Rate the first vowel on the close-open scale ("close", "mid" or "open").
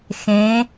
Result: mid